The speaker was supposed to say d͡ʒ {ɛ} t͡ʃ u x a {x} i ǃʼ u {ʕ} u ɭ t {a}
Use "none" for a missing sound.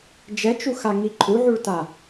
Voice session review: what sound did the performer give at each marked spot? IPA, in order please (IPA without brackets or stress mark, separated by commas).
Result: ɛ, ŋ, ʕ, a